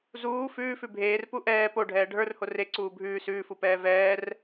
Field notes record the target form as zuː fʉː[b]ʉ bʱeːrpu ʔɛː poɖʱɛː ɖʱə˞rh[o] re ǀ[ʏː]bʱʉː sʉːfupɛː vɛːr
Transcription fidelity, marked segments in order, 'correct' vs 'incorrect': incorrect: f, correct, incorrect: uː

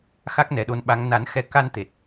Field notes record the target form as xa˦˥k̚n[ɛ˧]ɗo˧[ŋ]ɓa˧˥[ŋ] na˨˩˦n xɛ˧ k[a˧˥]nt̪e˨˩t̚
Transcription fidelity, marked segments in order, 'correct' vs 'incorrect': incorrect: ɛ˨˩, incorrect: n, correct, incorrect: a˧

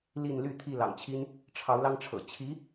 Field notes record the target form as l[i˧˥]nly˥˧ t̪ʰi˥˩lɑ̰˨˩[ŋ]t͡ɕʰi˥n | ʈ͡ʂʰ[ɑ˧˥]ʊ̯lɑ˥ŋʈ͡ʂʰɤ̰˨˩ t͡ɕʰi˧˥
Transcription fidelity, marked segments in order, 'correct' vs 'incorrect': incorrect: i˥˧, correct, correct

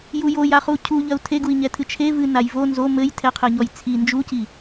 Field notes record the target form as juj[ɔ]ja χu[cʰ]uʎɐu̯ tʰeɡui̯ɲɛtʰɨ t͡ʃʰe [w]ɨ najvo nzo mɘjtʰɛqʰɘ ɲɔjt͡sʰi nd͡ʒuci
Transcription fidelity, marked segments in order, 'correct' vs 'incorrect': incorrect: o, correct, incorrect: v

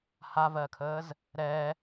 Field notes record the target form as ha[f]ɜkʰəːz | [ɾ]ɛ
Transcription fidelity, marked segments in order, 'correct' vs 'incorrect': incorrect: v, correct

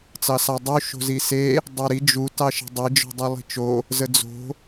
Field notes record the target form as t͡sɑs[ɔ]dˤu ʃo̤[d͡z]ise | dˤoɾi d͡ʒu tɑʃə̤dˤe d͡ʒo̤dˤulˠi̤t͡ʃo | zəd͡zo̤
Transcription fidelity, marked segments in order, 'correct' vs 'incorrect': incorrect: ɑ, incorrect: z

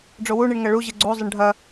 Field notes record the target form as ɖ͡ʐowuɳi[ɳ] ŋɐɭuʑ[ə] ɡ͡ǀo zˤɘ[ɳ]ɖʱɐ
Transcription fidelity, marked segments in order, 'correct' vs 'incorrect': correct, incorrect: ɨ, correct

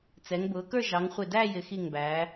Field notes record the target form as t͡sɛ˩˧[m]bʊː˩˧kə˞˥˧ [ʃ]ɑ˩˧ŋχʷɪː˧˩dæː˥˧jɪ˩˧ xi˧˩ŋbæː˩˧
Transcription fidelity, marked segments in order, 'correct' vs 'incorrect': incorrect: ŋ, incorrect: ʒ

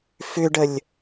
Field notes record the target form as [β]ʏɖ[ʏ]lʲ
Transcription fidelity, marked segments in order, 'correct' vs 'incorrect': incorrect: f, incorrect: ə

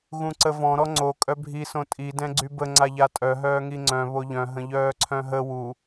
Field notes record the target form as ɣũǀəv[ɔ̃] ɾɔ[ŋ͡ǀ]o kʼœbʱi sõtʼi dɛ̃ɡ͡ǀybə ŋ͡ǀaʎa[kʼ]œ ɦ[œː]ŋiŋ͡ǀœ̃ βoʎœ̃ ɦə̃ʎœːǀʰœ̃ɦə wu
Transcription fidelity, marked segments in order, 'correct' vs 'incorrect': correct, correct, incorrect: tʼ, correct

